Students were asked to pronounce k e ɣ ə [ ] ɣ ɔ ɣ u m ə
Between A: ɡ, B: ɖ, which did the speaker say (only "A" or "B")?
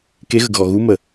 A